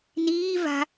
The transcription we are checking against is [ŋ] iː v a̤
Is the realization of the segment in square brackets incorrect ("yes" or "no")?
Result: yes